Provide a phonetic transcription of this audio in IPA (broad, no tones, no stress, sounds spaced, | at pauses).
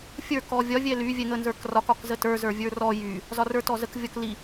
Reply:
fʲ ə˞ k ɔ vʲ ɒ vʲ ɛ l y vʲ ɛ ŋ ə n z ə˞ k r ɒ k ɒ k z ə t ə˞ z ə˞ vʲ ə˞ r ɔ j y | z ɒ r ə˞ t ɔ z ə k vʲ ɔ k l i